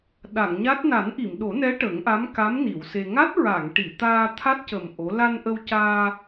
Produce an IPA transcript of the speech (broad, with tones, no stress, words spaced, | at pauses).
ɗa˨˩˨ŋɲa˦˥t̚ na˨˩˦nʔi˨˩˨mɗo˨˩˦nɛ˧˥ ʈə˨˩˦ŋʔa˧˥mka˧˥m ni˨˩˨wse˧ ŋa˦˥t̚ɹa˨˩˨ŋʈi˨˩˨t̪aː˧ t̪ʰa˦˥t̚cə˨˩m ʔo˧˥ la˧nʔə˧wcaː˧